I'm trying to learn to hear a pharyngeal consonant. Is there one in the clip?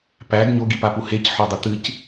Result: yes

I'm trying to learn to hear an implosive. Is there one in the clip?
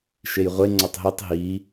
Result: no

